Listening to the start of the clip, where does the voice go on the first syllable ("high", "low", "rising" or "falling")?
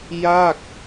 falling